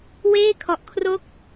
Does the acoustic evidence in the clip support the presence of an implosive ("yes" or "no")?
no